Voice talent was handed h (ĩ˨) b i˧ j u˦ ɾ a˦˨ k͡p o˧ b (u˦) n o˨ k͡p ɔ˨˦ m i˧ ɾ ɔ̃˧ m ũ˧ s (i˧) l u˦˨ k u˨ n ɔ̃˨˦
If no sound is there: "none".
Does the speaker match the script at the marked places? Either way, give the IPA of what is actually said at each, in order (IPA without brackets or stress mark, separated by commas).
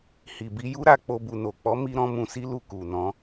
i˨, u˨, i˦